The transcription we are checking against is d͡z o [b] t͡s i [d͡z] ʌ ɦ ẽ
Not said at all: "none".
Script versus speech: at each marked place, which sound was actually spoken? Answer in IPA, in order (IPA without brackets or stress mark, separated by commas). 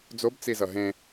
b, z